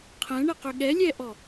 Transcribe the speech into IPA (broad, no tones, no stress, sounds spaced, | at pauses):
qʰ ɛ̃ ɳ ə q ʏ ɠ ɛ lʲ ɛ ʔ ɔ